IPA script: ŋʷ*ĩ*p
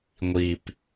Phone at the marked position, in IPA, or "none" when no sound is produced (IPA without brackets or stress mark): i